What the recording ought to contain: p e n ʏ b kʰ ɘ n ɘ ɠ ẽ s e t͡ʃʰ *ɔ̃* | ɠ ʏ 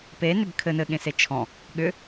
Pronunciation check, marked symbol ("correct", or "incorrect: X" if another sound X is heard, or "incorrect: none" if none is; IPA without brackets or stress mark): correct